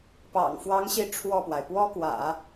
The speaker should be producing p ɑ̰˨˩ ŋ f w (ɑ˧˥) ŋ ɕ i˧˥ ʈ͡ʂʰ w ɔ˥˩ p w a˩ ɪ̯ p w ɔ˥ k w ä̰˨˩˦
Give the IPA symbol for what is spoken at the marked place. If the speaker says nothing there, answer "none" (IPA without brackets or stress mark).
ɑ˧˥